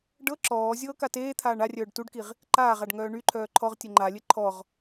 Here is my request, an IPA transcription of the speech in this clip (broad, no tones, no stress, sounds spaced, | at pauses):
ɖ ɤ ǁ ɔː zʲ ɤː k a t eː t̪ʰ aː ɳ a rʲ œː ɖ t u ɖ k i ʁ | ǃ aː ʁ a ɖ ŋ œː ɳ y ǃʰ œː ǃʰ ɔ ʁ tʲ ɘ ŋ͡ǃ a lʲ ɘ ǃʰ ɔ ʁ